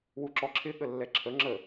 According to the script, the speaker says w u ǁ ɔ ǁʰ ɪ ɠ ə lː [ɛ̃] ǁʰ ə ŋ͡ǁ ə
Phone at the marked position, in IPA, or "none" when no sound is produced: ɛ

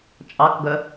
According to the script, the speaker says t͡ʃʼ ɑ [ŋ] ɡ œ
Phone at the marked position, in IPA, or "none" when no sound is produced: k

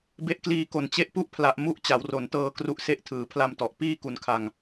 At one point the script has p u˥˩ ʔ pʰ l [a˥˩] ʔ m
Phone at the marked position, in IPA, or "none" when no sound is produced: a˨˩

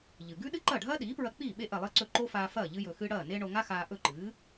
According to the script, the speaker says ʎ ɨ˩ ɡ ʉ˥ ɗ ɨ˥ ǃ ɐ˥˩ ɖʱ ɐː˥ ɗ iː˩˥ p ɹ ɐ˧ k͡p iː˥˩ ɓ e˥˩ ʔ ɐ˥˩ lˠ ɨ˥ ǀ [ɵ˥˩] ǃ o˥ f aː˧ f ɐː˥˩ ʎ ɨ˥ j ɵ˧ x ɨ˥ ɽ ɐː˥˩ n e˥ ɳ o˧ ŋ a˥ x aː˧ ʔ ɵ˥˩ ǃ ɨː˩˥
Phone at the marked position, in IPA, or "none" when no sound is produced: ɵ˥˩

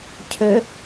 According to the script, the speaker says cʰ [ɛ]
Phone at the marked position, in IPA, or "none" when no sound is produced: ø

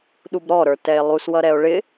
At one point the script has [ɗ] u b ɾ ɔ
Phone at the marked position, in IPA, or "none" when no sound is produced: ɗ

